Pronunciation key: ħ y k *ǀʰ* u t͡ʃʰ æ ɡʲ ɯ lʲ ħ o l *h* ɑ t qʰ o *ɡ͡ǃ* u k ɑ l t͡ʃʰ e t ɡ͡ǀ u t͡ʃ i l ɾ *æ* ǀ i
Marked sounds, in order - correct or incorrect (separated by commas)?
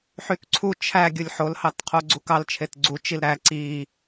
correct, correct, incorrect, correct